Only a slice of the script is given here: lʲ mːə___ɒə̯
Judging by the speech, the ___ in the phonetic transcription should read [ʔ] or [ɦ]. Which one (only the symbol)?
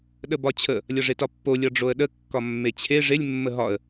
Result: ɦ